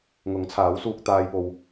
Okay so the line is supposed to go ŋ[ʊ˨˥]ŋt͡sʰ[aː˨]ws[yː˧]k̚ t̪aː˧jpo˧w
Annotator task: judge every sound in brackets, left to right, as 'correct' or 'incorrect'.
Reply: correct, incorrect: aː˨˥, incorrect: uː˧

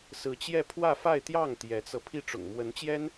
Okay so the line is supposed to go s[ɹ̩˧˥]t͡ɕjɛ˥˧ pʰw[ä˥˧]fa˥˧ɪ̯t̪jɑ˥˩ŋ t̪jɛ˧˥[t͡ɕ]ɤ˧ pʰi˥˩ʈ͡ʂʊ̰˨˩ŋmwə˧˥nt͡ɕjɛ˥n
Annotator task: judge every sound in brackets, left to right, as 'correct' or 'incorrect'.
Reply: correct, correct, incorrect: t͡s

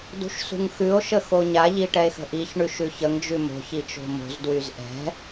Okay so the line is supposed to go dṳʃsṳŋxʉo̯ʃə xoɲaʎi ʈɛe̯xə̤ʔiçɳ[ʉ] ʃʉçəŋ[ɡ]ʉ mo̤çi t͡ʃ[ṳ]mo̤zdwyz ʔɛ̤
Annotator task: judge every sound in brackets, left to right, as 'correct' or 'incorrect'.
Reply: correct, incorrect: d͡ʒ, incorrect: o̤

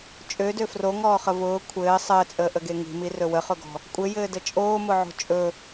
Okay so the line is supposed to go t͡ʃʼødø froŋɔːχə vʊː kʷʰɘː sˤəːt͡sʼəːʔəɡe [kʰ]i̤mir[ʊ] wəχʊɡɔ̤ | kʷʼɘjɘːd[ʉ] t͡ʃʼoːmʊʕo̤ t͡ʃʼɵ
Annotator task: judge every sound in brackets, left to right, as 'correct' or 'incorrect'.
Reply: incorrect: ŋ, incorrect: ɵ, incorrect: ə

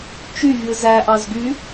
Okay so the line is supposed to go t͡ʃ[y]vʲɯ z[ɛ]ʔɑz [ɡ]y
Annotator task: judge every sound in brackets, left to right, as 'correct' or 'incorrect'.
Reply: correct, incorrect: æ, correct

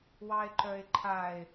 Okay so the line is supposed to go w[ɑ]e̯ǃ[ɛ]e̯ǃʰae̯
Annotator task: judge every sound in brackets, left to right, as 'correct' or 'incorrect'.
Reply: correct, incorrect: œ

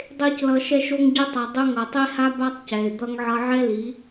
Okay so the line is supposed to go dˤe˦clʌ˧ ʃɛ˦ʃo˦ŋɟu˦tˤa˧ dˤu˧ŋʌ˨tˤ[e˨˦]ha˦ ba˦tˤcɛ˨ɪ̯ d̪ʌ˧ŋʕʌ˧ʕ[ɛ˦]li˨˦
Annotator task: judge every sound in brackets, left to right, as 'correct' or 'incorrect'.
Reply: incorrect: e˦, correct

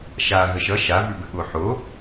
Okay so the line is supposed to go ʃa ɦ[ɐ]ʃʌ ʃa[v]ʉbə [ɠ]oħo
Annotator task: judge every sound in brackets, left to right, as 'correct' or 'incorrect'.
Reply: incorrect: ə, correct, correct

